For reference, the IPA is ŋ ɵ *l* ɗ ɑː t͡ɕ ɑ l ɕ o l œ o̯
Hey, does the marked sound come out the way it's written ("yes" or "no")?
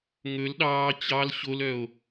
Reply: yes